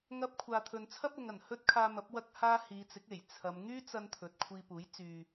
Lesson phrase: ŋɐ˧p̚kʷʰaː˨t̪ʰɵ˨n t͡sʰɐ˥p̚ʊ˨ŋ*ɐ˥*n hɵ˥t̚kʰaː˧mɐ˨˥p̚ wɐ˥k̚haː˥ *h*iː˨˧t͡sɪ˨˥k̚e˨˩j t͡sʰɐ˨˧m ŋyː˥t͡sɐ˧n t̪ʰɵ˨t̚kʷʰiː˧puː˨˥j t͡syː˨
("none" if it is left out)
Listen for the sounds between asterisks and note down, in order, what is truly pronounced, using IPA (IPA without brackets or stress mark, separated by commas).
ɐ˨˩, h